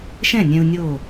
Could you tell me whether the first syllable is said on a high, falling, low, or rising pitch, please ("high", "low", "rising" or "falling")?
falling